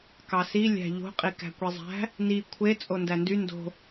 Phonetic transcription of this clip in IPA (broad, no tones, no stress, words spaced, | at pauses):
kɑsi lʲæ̤ʎo̤ qʼikæ̤kʷizˤæ̤ | ni kʷʰe t͡sʼondændy ndo̤